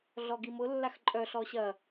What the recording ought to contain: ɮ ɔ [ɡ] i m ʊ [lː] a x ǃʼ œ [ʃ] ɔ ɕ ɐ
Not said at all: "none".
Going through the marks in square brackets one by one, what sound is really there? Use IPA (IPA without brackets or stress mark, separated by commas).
ɡ, lː, ɬ